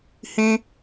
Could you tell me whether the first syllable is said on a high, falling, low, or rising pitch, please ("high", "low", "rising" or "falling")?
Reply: high